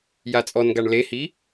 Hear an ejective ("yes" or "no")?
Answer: yes